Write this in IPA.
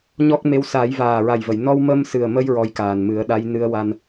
ɲ ɔ˦˥ k̚ m e˧˥ w s aː˨˩˦ j v aː˨˩ ɹ a˨˩ j v ə˨˩˨ j n ɔ˧ w m ə˧ m s ɨ˨˩ ə̯ m ə˧ j ɹ ɔ˧˥ j k aː˨˩ n m ɨ˨˩˦ ə̯ ɗ a˧˥ j n ɨ˧˥ ə̯ w a˧ n

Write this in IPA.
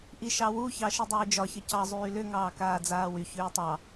ʔ i ʃ ɑ w u ç ɑ ʃ i dˤ ʏː d͡ʒ ɒ ç ə c ɑ zˤ yː l ʏ ŋ ɑː k aː d͡z aː w y ç ʏː tˤ ɑ

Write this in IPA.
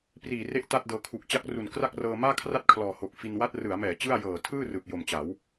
p r iː˨˩ r e˦˥ ʔ t a˥˩ t̚ d ɤː˧ kʰ u˨˩ k̚ t͡ɕ a˦˥ k̚ r u˨˩ n k r a˥˩ k̚ r ɤː˧ m aː˥˩ kʰ r a˥˩ t̚ kʰ l ɔː˨˩ h o˨˩ k̚ f i˧ n w a˥˩ t̚ r ɯ˩˦ a̯ m ɛː˩˦ t͡ɕ ɯ˥˩ a̯ j ɤː˨˩ tʰ ɯː˥˩ r ɯ˨˩ k̚ j o˨˩ m t͡ɕ a˩˦ w

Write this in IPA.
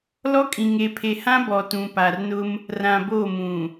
l ɔ˦ kʼ ĩ˨ ŋ e˨ pʰ e˨ h ã˦ b ɔ˨ t ũ˨ p a˨ r n ʊ˦ m | r ã˨ b o˦˨ m ũ˨

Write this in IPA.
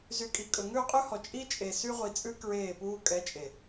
z y˨ kʼ i˨ kʼ ɵ˨ ŋ ʉ˦˨ qʼ ʉ˦ h ɔ˨ t͡ʃʼ i˦ t͡ʃʼ e˨ s y˦ ʁʷ i˨ t͡sʼ ʉ˦ k ɹ eː˦˨ p uː˦ kʼ ɛ˨˦ t͡ʃʼ e˨

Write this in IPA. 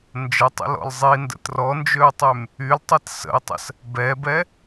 n d͡ʒ ə tˤ ə̰ l ɔ̰ l zˤ i n d ə̰ t r ɔ n d͡ʒ ø u̯ tˤ y m | y l tˤ ɛ t s ə̰ i̯ tˤ ə̰ s | b ɛ b ɛ

